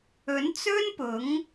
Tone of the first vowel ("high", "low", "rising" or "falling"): rising